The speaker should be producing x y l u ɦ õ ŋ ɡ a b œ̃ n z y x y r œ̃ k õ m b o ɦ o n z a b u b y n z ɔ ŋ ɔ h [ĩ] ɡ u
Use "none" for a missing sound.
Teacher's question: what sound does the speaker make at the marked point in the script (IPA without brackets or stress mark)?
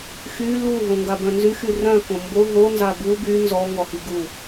i